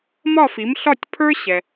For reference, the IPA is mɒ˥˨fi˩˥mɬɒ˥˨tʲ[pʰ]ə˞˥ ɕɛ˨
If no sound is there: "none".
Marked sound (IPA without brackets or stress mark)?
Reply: pʰ